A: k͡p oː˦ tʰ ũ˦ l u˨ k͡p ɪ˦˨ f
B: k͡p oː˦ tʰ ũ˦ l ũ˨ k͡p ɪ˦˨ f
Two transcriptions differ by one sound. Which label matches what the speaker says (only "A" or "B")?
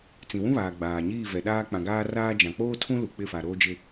A